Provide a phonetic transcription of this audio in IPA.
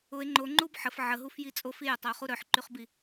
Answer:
ʊe̯ ŋ͡ǃoŋ͡ǃub ħəf ʕəɦuf jit͡sʼof ijʊtˤəo̯ χuɾœħǃyχbi

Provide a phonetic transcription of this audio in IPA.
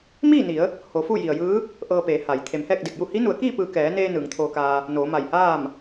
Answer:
miː˥˨ni˩˧ə̯ | ho˩˧fu˥˨ji˩ə̯jɯː˧˥ | ʔɤː˧peː˩˧ha˩j t̪ʰe˩˧mhɛː˥˨k̚de˧˩k̚ju˥˨ hi˧˥nu˩˧ə̯kiː˥˨pɯː˧˩ kɛː˩˧neː˧ nɯː˩˧ŋt̪ʰoː˧kaː˧ | noː˩˧ma˧˩jhaː˥˨m

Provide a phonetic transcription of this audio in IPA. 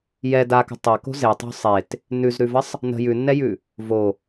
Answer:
jɛ dakə̤ tˤako̤ zetˤo̤ sˤet | nʉzɾʉvəsˤ | nə̤ jʉnːɛjʉ | vo

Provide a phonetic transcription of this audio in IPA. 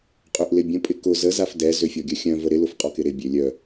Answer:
qʼøʔlɪbʲə̃ pʼɪkʊ zə zafdɛ zøfʲɔɡʲœxʲœ̃ vəɾɪ lʊfqʼɔkɪɾɪ bʲølʲœ

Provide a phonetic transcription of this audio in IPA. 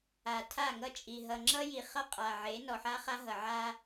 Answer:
a˨tʰa˦˨ŋʌ˦t͡ʃʼi˨ ɦʌ˨ŋ͡ǁʌ˦ ji˨ χʌ˦qʼa˨ʕe˨˦ nɔ˨ħa˦χa˦ɦʌ˨ ʕa˦

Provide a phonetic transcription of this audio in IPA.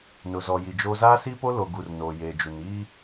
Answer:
nʊ˨zɔ˨ji˨d͡ʒoː˦ zaː˦si˦po˦ lo˨ɡu˨r no˨jeː˨d͡ʒu˨n iː˦

